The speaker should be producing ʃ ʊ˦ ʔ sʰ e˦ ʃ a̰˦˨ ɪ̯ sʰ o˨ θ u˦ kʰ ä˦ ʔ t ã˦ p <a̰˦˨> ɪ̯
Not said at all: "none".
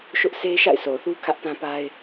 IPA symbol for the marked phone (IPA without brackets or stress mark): a˦